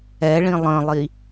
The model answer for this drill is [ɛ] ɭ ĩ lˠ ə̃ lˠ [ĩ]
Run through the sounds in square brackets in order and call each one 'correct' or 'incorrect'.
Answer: correct, incorrect: i

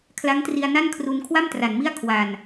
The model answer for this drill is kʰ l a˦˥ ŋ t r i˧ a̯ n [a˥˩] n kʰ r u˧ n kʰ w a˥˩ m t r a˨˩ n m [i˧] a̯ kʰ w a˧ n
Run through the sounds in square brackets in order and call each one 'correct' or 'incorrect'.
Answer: correct, incorrect: i˥˩

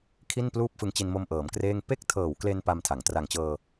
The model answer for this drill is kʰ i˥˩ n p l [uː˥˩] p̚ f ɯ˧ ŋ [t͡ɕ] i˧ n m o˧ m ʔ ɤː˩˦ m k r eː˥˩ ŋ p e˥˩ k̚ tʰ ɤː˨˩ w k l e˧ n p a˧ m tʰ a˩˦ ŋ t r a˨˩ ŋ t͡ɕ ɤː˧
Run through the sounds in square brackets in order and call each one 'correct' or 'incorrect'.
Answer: correct, correct

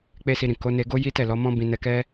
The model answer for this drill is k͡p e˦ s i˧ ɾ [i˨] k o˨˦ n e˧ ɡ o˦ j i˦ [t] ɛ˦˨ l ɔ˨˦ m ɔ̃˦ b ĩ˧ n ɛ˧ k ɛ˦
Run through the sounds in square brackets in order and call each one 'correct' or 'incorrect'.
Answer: incorrect: ĩ˨, correct

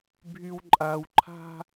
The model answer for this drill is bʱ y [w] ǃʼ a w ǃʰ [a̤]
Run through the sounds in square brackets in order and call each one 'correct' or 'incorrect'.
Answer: correct, correct

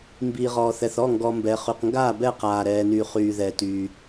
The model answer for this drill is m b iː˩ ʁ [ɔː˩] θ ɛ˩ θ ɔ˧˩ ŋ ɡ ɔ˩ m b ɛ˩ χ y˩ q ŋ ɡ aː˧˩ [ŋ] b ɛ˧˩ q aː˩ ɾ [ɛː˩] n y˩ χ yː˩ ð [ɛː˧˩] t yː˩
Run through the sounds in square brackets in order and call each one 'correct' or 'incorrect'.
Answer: correct, incorrect: none, correct, incorrect: ɛː˩

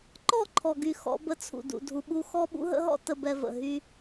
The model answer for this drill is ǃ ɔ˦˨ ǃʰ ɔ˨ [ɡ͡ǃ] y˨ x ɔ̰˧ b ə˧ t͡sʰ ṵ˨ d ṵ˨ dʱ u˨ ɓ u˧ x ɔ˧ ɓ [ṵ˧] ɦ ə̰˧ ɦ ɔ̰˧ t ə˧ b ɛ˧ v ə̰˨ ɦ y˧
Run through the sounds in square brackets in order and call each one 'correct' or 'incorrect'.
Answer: incorrect: ɡ, correct

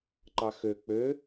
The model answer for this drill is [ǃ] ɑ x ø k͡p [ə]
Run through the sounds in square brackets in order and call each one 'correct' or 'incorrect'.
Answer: correct, incorrect: ø

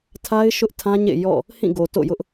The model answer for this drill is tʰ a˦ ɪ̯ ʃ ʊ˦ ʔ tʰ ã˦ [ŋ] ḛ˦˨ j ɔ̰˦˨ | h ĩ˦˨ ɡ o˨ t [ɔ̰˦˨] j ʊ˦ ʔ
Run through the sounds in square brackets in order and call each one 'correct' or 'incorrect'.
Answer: incorrect: ɲ, incorrect: o̰˦˨

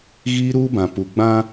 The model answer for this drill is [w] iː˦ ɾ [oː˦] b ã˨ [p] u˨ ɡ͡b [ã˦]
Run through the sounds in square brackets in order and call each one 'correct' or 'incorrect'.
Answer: incorrect: ɣ, incorrect: uː˦, correct, correct

